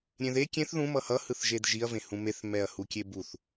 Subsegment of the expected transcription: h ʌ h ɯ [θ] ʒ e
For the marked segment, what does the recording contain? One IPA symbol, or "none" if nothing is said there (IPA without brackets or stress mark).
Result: θ